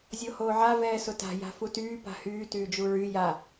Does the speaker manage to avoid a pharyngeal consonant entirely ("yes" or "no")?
no